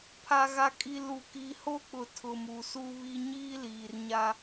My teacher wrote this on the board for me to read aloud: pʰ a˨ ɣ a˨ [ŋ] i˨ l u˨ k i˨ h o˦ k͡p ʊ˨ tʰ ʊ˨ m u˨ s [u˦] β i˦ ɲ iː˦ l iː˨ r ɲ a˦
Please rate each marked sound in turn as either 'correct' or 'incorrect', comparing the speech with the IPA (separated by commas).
incorrect, correct